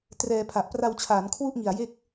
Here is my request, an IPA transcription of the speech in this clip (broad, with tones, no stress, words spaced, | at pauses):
trɛː˧ pʰa˨˩ʔpra˧wt͡ɕʰaː˩˦n kʰwu˥˩ʔŋi˨˩a̯ je˦˥k̚